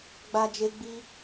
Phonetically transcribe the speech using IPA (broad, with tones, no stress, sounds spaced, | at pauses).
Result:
ɡ͡b a˧ d͡ʒ e˧ ɡ͡b i˦